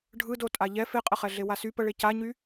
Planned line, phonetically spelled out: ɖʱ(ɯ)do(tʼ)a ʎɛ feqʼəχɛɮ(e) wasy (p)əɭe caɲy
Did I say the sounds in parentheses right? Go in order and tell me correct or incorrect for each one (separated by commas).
correct, correct, correct, correct